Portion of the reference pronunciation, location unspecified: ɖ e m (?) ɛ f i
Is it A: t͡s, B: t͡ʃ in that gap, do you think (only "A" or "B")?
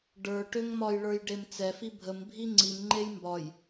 A